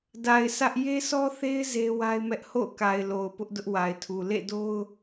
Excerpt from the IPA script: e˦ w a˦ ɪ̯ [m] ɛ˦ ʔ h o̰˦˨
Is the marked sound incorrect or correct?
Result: correct